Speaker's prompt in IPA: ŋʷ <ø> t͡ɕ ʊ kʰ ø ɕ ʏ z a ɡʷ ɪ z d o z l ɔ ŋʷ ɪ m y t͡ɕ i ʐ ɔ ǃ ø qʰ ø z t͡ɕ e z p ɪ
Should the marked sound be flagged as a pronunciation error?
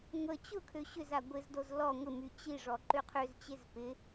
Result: yes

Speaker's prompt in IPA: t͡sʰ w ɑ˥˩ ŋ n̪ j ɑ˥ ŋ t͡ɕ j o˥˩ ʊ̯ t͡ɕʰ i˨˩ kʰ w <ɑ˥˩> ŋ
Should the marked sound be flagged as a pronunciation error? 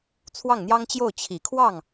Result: no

